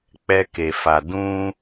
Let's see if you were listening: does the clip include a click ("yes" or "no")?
no